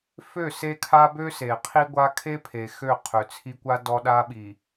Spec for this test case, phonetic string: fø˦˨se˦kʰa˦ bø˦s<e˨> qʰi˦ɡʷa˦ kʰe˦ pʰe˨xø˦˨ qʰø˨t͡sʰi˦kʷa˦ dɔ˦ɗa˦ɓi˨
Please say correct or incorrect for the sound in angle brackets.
correct